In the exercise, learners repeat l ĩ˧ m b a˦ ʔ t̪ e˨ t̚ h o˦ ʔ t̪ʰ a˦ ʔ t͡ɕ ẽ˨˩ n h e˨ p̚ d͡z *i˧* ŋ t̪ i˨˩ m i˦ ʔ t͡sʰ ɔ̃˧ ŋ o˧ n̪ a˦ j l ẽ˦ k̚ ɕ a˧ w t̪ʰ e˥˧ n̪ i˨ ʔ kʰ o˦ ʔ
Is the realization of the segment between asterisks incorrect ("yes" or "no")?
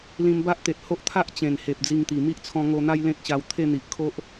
no